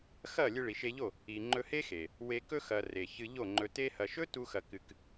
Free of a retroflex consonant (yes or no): no